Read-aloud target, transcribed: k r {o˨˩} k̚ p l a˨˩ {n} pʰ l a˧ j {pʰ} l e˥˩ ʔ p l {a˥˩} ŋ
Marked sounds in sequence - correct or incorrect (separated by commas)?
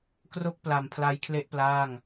incorrect, incorrect, incorrect, incorrect